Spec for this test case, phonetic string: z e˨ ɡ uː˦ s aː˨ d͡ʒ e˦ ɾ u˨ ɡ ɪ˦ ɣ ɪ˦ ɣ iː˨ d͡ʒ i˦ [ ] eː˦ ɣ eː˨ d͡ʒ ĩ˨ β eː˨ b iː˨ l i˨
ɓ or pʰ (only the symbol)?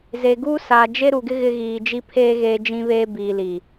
pʰ